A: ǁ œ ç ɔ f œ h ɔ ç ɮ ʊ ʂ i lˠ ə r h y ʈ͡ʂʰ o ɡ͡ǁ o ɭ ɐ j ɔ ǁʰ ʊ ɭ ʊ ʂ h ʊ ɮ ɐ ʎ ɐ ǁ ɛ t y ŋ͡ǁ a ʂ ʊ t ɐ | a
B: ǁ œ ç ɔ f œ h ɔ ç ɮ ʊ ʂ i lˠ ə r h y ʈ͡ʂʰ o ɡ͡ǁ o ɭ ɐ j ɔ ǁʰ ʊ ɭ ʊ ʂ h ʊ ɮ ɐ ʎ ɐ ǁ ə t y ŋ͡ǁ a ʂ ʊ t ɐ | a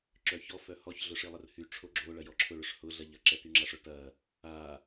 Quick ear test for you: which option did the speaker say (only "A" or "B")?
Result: A